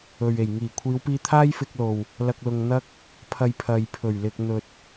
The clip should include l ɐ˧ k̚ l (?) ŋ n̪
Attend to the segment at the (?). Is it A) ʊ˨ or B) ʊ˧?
A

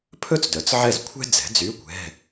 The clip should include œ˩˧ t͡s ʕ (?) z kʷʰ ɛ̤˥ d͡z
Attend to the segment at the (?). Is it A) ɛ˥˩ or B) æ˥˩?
A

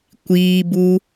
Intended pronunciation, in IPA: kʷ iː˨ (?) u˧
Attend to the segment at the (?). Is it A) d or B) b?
B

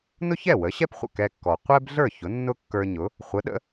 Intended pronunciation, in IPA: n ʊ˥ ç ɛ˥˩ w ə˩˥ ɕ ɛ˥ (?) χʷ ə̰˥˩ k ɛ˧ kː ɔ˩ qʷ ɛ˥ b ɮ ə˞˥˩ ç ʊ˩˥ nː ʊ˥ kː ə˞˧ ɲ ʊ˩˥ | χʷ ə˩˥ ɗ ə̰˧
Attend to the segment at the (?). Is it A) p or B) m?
A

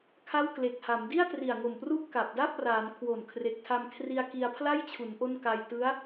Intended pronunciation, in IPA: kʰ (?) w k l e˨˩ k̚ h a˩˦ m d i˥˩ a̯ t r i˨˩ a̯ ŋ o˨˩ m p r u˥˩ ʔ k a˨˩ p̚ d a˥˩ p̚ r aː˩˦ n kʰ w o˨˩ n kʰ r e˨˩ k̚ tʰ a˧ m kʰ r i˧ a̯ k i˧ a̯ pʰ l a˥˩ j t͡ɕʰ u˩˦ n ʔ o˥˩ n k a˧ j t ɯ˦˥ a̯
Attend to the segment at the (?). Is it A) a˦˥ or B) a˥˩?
B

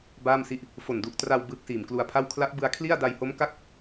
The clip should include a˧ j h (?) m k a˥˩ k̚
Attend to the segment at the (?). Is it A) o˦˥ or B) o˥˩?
A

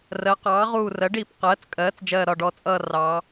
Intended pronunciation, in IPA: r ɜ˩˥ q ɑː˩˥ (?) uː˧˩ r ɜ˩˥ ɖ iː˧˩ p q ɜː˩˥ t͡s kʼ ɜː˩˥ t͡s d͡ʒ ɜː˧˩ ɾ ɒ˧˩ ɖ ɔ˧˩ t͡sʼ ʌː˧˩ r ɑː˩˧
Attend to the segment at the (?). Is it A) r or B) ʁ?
B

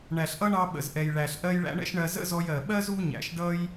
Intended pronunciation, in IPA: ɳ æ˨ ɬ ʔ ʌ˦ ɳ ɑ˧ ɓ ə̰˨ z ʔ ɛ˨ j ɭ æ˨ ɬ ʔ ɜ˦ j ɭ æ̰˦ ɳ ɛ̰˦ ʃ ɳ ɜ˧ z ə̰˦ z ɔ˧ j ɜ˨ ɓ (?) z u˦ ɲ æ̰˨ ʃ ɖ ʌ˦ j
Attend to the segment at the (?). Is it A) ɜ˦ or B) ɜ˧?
A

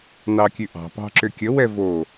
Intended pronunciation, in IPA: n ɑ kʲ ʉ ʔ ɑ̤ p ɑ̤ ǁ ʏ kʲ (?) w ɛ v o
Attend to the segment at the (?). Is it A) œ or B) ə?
B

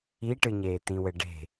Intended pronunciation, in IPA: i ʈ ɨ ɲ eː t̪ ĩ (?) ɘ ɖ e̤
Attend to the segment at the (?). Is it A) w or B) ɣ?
A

